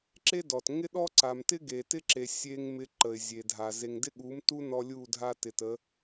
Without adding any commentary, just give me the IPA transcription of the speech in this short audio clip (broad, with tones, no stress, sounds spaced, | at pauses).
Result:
ǁ e˦ d ɔ˨ t ŋ ɪ˦ ɗ ɔ˦ ǀ a˨ m t ɪ˦ ɡ e˨ t ɪ˦ ǁ e˨ sʲ e˦ ŋ m ɪ˦ ǃ ə˨ ɪ̯ zʲ e˨ dʱ a˨ z e˨ ŋ d ɪ˦ ɠ u˨˦ m t u˦ n ɔ˦ lʲ u˦˨ dʱ a˦ t ɪ˨ t ə˨˦